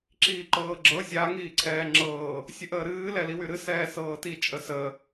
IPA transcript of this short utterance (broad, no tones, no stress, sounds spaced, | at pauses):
ǁ iː ǃ ɤː ɡ͡ǁ ɤ zʲ a ŋ iː ǀʰ ɛː ŋ͡ǁ ɤː | sʲ ə ʔ əː ɾ ɨː l ɛ l i w y ɾ ɨ s ɛː s ɤː t i t͡ʃʼ ə s ə